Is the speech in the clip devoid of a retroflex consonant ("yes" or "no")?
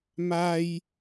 yes